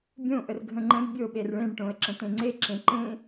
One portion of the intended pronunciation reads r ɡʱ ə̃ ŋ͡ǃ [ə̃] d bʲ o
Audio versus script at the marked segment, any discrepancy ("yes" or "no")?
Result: no